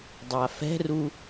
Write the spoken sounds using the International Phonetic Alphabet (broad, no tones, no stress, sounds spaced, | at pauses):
dˤ a f ɛ̤ r u